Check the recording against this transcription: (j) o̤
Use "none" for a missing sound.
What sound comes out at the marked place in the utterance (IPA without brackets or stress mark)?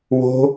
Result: w